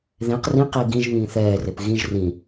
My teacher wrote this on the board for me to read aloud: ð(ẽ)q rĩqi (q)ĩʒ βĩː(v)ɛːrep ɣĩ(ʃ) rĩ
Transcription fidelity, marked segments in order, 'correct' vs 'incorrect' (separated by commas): correct, incorrect, incorrect, incorrect